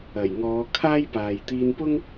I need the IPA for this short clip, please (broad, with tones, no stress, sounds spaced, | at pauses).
ɐ˨˩ j ŋ ɔː˨˧ kʰ aː˥ j p aː˨ j t̪ iː˧ n p ʊ˥ ŋ